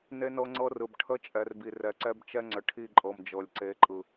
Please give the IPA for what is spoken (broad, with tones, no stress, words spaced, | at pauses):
ne˦nɤ˦ŋ͡ǀɤ˦rɯ˨b ʈʰə˦ t͡ʃʼɛ˨rbi˨rɛ˨ǀɛ˦b t͡ʃɛ˦ŋ͡ǀə˨ ʈʰi˦˨ǃʼɤ˨m d͡ʒɤ˨lʲǀe˨˦ǃʼɯ˨